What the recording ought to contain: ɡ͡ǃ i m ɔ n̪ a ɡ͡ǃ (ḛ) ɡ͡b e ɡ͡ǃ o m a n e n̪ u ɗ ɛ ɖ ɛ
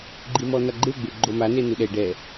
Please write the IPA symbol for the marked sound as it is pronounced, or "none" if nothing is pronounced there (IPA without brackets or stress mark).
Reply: e